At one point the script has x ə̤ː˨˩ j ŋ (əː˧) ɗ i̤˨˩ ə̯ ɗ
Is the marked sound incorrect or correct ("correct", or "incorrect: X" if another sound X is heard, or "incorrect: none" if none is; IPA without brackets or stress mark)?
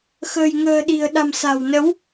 incorrect: ə̤ː˨˩